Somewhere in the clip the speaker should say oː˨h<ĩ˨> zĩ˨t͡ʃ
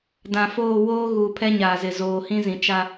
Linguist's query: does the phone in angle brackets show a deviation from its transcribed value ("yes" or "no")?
yes